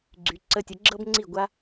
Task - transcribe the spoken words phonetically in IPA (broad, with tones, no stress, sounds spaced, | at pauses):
ɡ͡ǀ y˨ ǀ ə˧ tʲ ə˨˦ ɡ͡ǁ ɤ˦ b ŋ͡ǀ i˦˨ ɡʷ a˦